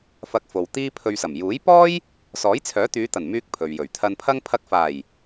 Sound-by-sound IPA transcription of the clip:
f ɐ˧ k̚ f o˨ w t̪ iː˥ pʰ ɵ˧ ɥ s ɐ˨˩ m j uː˨˥ j p ɔː˥ j | s ɔː˨˥ j t͡sʰ œː˨˥ t̪ yː˨˧ t̪ ɐ˨˩ n m yː˧ k̚ pʰ ɵ˨ ɥ j ɵ˨˩ ɥ t̪ʰ ɐ˧ n pʰ ɐ˥ ŋ pʰ ɐ˧ k̚ f aː˨˩ j

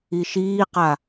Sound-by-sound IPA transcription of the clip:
i ʃ iː q a

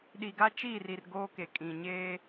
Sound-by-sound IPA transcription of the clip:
ɗ i˨ ɡ a˦ t͡ʃ iː˦˨ r i˨ r ɡ oː˦ k e˨ kʼ ĩ˨ ɲ eː˦

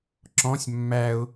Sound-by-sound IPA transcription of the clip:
ǁ ɔ̃ sʲ mː æ ʊ̯

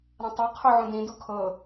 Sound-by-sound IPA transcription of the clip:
ɾ ã tˤ e qʰ o ʕ ũ d ĩ d u kʰ ɤ

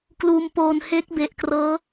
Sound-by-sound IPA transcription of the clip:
k l uː˧ m p oː˧ n h e˦˥ k̚ b e˨˩ ʔ k r ɤː˦˥

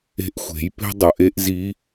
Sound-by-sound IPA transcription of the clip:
e̤˧˥ ʔ xʷ e̤˩˧ j p e̤˥ dˤ ʌ˩ ʔ e˥ ʔ z i˧˥

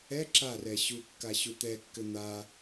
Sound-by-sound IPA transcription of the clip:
ɛ ǁ a r ɛ ɕ u kː a ɕ u t̪ ɛ kː ɘ n̪ a

